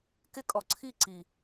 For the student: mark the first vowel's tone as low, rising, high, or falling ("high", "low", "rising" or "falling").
high